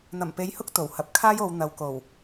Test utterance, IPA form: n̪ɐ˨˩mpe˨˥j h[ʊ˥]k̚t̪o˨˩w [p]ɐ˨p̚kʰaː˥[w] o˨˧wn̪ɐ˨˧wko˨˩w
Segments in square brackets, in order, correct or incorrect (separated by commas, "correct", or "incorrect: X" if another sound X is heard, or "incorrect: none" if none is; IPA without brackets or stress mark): correct, incorrect: h, incorrect: j